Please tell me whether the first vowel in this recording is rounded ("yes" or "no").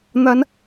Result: no